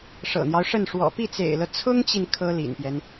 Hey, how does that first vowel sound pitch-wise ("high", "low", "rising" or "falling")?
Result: low